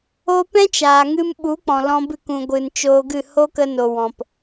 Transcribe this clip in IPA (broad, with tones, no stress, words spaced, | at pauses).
o˦ pɛ̃˦t͡ʃaː˨ŋɨ˧mɓu˨˦ k͡pɔ̃˨lɔ̃˧bɨ˦˨k ũ˨ɡʷɨ˨n t͡ʃoː˧ɡɨ˦˨ ho˦kə˧no˨ wɔ̃˨p